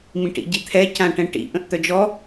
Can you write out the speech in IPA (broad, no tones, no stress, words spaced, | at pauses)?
mĩʈḭɟit̪ʰɛ cãʈɛ̃ʈḭ ʔə̃ʔt̪œd͡ʒɔ